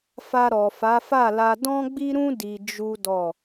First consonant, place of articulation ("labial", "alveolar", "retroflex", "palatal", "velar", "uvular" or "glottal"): labial